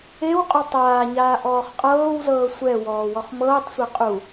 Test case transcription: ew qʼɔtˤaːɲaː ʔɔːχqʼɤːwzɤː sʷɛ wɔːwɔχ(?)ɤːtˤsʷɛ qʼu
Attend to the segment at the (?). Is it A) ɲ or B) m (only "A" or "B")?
B